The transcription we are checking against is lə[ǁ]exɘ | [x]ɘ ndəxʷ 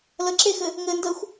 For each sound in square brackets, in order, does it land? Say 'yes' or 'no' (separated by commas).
yes, no